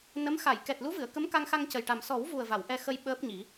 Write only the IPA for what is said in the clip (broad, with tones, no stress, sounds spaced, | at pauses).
n ə˧˥ m x a˨˩˨ j k ɛ˨˩ t̚ l u˧˥ v ɨ˨˩˨ ə̯ k ə˧˥ m k a˧ ŋ x a˧ ŋ c ə˨˩ j ʈ a˨˩ m s ɔ˨˩˦ w v u˨˩ ə̯ v a˨˩˨ w ʔ ɛ˧ x ə˧ j ɓ əː˦˥ p̚ ɲ i˨˩˦